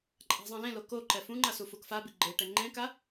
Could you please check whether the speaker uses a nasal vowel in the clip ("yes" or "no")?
yes